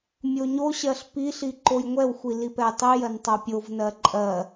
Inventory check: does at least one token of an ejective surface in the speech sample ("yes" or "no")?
yes